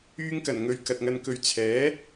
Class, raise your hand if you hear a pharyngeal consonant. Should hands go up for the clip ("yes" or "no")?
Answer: no